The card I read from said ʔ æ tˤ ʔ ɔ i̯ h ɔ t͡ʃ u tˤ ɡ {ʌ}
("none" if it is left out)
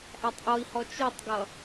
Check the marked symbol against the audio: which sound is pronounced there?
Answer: ʌ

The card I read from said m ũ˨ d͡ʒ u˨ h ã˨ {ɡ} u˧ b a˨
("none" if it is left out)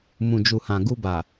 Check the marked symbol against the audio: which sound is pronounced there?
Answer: ɡ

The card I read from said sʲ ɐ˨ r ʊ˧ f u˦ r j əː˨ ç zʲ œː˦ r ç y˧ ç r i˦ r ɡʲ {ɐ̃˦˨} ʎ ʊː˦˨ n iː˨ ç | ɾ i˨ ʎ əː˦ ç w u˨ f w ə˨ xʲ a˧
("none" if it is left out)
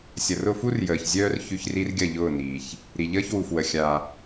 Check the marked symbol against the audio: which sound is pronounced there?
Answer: ɐ˦˨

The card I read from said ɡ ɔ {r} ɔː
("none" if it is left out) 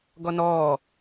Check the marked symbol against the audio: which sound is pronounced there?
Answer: n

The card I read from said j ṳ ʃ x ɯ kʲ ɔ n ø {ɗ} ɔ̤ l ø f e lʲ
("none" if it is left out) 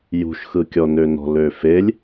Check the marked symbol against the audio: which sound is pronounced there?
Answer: n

